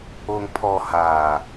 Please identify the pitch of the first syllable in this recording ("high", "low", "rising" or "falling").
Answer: low